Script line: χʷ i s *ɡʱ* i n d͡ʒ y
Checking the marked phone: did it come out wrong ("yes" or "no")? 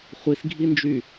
no